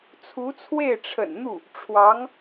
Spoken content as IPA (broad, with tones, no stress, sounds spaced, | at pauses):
t͡sʰ u˧˥ t͡sʰ w e˥˩ ɪ̯ ʈ͡ʂʰ ə̰˨˩ n n̪ u˥˩ | ʈ͡ʂʰ w ɑ˧˥ ŋ